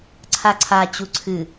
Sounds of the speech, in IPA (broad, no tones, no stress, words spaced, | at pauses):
ǀʰaǀʰa t͡ɕuǀʰɨ